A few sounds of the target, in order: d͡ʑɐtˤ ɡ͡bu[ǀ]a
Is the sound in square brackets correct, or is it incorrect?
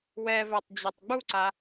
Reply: correct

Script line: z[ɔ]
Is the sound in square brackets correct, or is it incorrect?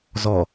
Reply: correct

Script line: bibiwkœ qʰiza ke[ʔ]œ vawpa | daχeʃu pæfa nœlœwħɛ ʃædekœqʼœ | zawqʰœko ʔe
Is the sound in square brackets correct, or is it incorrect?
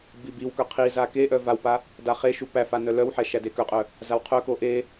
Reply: correct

